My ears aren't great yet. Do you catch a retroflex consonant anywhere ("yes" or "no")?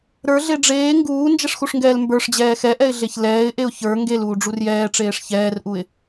yes